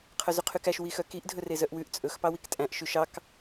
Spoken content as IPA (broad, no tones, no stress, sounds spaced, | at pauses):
qʰ œ z y qʰ y k æ ʃ w i x œ k i ʔ dʱ ɵ r e z œ ʔ w ʉ ʔ t͡sʼ ɵ x p ɑ w i k tʼ æ̃ ʔ ʃ y ʃ ɑ k